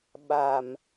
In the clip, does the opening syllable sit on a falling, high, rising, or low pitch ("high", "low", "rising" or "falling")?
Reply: low